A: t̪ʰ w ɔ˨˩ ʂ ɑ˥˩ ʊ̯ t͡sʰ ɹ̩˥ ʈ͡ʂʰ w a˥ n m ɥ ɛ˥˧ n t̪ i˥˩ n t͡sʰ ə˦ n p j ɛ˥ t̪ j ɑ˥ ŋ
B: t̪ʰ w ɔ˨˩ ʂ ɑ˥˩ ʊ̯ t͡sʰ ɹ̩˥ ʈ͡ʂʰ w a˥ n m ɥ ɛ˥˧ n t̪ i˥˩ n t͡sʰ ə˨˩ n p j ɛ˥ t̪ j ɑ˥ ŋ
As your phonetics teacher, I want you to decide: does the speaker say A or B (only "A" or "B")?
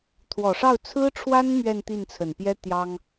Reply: B